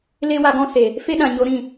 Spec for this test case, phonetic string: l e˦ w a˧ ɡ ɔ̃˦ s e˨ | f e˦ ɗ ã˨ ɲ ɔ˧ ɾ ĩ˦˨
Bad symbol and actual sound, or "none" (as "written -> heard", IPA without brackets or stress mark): ɔ˧ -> o˧